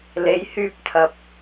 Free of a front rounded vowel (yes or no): no